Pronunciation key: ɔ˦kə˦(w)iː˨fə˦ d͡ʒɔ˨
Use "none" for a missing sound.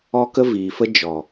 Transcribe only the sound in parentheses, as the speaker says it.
v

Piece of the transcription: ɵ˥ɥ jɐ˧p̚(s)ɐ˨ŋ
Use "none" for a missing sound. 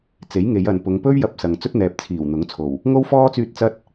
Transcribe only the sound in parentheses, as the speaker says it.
s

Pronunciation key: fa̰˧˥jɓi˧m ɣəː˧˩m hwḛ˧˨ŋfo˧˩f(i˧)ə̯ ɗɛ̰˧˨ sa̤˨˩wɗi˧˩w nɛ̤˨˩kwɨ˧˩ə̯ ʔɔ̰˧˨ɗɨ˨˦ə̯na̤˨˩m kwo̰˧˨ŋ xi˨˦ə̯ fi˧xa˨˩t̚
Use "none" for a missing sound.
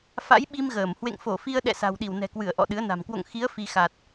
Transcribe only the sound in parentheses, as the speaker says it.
i˧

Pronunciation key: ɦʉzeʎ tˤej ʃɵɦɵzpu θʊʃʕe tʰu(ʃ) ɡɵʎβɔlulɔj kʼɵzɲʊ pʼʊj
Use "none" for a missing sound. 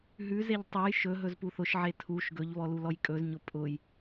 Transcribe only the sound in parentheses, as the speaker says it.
ʃ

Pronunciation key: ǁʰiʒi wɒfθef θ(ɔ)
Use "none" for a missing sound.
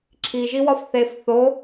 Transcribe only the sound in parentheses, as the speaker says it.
o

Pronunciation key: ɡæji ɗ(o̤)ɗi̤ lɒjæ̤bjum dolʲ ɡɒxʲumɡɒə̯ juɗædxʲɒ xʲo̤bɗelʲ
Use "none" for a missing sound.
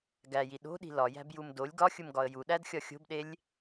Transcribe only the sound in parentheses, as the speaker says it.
o̤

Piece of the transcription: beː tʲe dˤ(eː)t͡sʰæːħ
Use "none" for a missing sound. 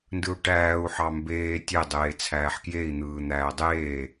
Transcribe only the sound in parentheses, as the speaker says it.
eː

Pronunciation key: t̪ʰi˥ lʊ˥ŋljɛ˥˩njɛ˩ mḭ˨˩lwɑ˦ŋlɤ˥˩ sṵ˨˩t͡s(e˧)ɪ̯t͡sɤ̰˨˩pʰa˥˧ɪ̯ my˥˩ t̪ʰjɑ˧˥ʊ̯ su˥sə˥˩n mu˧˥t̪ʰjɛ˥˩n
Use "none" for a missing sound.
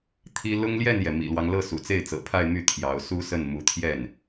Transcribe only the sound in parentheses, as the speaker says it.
e˥˩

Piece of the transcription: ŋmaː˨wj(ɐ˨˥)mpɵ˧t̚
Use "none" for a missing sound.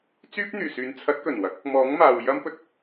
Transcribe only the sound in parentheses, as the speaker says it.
ɐ˥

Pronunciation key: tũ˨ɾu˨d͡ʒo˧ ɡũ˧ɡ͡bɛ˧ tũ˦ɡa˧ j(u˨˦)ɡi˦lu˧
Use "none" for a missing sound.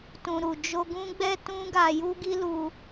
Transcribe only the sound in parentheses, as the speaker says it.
u˦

